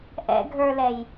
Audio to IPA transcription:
ʔ ɛ̰ ɡʱ ə˞ l ɛ j

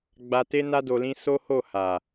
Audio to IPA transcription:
ɡ͡b a˧ t e˦ n a˦ d o˧ l ĩ˦ s o˦ h o˦˨ h a˨

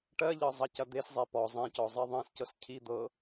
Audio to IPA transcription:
ʈ ɜ ʎ ɤ zˤ ɐ c ɐ d̪ e s zˤ e p ɔ zˤ ẽ c ɔ zˤ e ðˤ ẽ s c ɤ s cʰ i d̪ ɤ

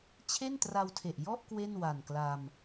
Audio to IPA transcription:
t͡ɕʰ e˥˩ n t r a˧ w tʰ e˨˩ ʔ j ɔ˥˩ ʔ k w e˥˩ n w a˨˩ n k l a˧ m

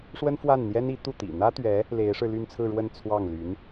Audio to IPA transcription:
ʂ w ə˥ n f w a˥˩ n n̪ j ɛ˥ n i˧˥ t̪ u˥˩ t̪ ḭ˨˩ n̪ ä˥ t̪ ɥ ɛ˧˥ | l e˧˥ ɪ̯ ʂ ɻ̩˧ l y˥˧ n t͡sʰ ɹ̩˥˧ ɻ w ə˥˧ n t͡sʰ w ɑ˥˩ ŋ l y˧˥ n

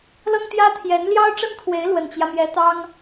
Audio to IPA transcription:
l ɤ˥ ŋ t̪ j ä˥ t̪ʰ j ɛ˧˥ n l j ɑ˥ ʊ̯ ʈ͡ʂ ə˥ n kʰ w e˧˥ ɪ̯ l w ə˨˩ n t͡ɕ j ä˦ m j ɛ˧˥ t̪ ɑ˥ ŋ

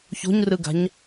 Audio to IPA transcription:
ç o̤ ɲ r ɯ ɡ a̤ ɲ

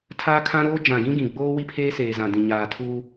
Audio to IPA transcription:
tʰ aː˦ kʰ ã˦ ɾ oː˦ d͡ʒ ã˨ ɡ ĩ˦ ɡ ĩ˨ ɡ͡b oː˦ w i˦ pʰ eː˦ s eː˨ z ã˨ d ĩ˨ ɲ aː˨ tʰ uː˦

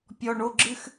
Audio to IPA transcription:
pʲ ɔ˨ ɳ o˨ ɡ͡ǁ ɨ˨ x

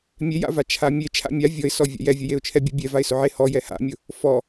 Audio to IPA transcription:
mʲ e j a̰ v a t͡ʃʰ a mʲ e t͡ʃʰ a̰ mʲ a vʲ ɔ ɪ̯ s ɔ vʲ a̰ j ɛ vʲ ʊ j e ʊ̯ t͡ʃʰ ɛ bʲ ʊ bʲ ɛ v a ɪ̯ s ʊ ʕ e h ɔ j ɛ h a̰ mʲ ʊ | f ɔ

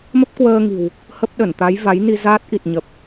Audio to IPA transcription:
m ə˦˥ p̚ k w əː˧ ŋ i̤˨˩ w | h ə˦˥ p̚ ɗ ə˧˩ n t̪ a˨˦ j v a˨˦ j n i˧ z aː˦˥ t̚ ʔ i˨˩ t̚ ɲ ə˨˩ p̚

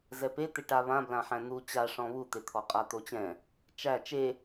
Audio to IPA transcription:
z ɛ p e t̪ e ʈ a β ã b l ã ħ æ̃ n̪ u t͡ɕ a ʂ ɔ̃ β u t̪ e t̪ʰ ɔ qʼ a t̪ o t͡ɕ ɛ̃ | t͡ʃ æ t͡ʃ e

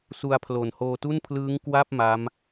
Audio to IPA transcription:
s u˧ a̯ pʰ l o˨˩ n h oː˧ t u˥˩ n pʰ l ɯː˦˥ ŋ k w a˥˩ p̚ m a˦˥ m

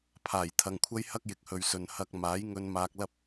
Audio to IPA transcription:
pʰ aː˨˩ j t̪ʰ ɐ˨ ŋ kʷʰ ɐ˥ j h ɐ˥ k̚ j ɪ˨ k̚ h ɵ˨ ɥ s ɵ˨ n h ɐ˧ k̚ m aː˨˥ j ŋ ɵ˧ n m aː˧ k̚ l ɐ˥ p̚

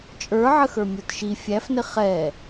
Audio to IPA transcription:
t͡ʃʼ ə˞ ʕ ə x ə˞ mʲ ə˞ t ʃ i fʲ æ f n ɪ χ ɛ

